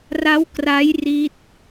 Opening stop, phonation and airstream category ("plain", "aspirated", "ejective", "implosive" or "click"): plain